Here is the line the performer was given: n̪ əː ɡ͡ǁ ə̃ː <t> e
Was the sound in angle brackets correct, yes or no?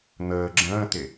yes